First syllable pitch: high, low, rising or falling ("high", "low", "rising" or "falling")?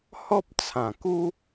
high